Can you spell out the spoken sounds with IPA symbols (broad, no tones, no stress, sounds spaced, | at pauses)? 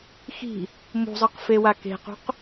x i̤ | m ṳ zˤ ɯ q f e w a k e̤ q ṳ q